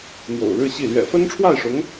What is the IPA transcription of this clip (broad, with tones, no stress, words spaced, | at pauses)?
n̪jo̰˨˩ʊ̯ɻɻ̩˥˧ɕi˥˩ lɥɛ̰˨˩fə˥nʈ͡ʂʰwa˥˩ɪ̯ʂʊ˧˥ŋ